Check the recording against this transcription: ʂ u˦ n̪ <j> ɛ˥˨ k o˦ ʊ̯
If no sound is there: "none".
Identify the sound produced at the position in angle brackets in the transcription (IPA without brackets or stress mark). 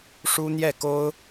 j